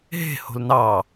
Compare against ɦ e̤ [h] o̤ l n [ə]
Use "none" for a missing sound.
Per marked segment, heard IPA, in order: h, ɑ

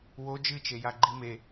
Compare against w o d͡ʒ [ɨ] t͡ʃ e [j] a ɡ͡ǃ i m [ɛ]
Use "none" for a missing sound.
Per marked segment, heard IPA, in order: ɨ, j, e

